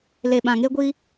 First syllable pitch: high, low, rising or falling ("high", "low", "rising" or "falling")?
low